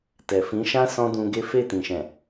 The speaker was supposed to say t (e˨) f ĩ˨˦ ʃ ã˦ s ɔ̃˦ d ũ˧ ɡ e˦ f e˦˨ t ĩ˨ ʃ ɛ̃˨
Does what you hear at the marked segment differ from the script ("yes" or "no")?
yes